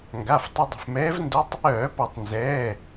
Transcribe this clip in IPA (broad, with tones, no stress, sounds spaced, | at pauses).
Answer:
ŋ ɡ a˩˧˩ f tˤ ə˧ dˤ ə̤˩˧˩ f m ɛː˧˥ v n d o˧˥ tˤ | œː˧˩˧ p ɔ˧˩˧ tˤ n z ɛː˩˧˩